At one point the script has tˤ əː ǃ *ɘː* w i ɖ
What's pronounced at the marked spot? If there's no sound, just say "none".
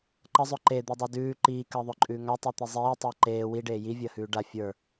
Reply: eː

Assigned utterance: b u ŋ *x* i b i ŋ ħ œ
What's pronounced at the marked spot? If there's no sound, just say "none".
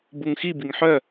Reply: x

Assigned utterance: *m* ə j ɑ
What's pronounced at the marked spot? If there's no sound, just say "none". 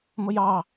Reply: m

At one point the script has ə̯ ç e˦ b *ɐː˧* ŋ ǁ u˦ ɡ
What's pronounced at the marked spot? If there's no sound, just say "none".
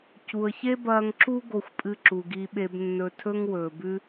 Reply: ɐː˧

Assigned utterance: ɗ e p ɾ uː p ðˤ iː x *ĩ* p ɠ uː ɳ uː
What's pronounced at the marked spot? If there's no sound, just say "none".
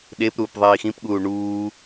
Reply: ĩ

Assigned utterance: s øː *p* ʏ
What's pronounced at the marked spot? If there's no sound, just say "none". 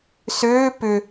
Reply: p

